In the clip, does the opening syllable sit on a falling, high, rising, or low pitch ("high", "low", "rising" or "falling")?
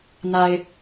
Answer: low